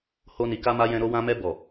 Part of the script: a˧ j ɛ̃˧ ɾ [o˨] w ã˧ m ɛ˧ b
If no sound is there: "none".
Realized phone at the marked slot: o˧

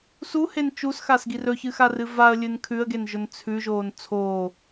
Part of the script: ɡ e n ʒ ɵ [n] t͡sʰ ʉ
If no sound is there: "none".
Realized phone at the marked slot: n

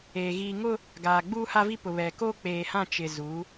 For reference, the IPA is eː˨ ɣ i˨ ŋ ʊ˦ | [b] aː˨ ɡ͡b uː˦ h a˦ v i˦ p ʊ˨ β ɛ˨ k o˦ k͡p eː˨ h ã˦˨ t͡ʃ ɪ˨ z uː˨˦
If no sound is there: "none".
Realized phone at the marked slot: ɡ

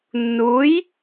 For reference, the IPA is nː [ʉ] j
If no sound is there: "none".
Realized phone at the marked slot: u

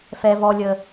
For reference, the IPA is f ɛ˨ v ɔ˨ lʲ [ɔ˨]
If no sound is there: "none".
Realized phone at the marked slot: ə˨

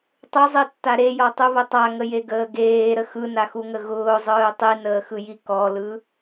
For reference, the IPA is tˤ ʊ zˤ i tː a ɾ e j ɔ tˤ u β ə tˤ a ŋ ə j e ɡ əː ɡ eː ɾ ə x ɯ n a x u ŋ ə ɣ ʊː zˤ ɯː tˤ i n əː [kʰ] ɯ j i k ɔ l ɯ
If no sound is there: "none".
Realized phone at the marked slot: x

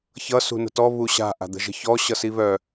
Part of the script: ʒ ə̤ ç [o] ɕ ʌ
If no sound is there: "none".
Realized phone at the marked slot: ɔ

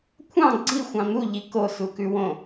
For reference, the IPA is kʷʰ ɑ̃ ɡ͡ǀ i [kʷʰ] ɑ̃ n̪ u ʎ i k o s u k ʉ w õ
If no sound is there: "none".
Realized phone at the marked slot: xʷ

